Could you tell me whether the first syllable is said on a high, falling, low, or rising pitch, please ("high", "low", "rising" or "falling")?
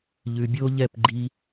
low